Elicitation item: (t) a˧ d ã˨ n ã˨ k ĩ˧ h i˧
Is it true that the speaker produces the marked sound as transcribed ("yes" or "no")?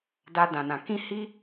no